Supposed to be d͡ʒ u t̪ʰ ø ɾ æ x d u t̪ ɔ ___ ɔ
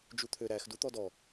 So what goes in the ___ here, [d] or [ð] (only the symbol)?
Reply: d